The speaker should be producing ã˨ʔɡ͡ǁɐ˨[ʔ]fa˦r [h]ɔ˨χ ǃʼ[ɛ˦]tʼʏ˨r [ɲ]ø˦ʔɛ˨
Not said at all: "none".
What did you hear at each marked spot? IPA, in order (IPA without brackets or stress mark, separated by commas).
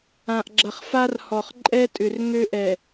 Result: χ, h, ɛ˦, ŋ